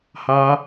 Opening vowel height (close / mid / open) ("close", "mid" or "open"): open